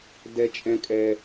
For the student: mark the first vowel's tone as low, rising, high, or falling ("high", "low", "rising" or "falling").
high